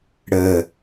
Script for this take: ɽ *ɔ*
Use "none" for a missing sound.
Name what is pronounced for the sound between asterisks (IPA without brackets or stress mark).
ə